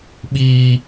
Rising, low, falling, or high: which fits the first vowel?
low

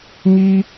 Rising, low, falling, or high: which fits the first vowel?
high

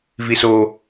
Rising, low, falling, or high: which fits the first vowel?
low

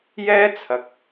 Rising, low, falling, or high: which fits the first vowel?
high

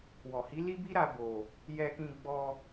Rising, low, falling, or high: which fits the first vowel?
low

